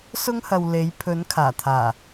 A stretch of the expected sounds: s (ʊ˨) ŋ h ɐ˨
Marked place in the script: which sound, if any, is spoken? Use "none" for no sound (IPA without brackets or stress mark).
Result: ʊ˥